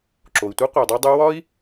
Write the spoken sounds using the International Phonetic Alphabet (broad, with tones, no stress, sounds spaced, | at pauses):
ǁ o˩ i̯ tʷ e˥ qʷ æ˩ dˤ o˧ dˤ u˧ w ɒ˥ i̯